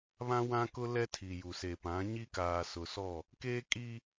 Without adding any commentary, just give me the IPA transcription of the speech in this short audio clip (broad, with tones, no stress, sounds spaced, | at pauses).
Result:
β ã˦ w ã˦ k ʊ˦ l ɛ˦ tʰ i˨ j u˨ s e˨ p ã˨˦ ɲ i˦ k aː˨ s ʊ˨ s ɔ˦˨ | k eː˦ kʼ i˦